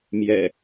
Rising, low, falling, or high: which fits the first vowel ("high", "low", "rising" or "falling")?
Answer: low